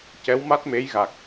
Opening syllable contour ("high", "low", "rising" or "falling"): rising